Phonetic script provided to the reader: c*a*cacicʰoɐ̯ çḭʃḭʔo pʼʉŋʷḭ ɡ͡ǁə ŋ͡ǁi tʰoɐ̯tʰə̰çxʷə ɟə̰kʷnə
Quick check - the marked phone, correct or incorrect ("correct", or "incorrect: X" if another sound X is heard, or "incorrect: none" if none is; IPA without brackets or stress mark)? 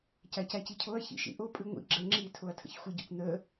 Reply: correct